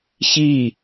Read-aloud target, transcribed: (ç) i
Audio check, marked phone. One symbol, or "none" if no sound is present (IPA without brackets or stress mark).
ç